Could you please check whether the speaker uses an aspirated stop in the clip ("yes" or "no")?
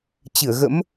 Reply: no